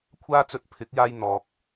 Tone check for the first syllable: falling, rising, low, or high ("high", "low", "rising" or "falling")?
high